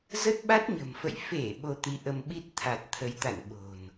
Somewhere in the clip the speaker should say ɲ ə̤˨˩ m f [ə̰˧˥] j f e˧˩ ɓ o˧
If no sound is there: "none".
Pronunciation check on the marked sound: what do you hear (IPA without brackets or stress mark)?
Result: ə̰˧˨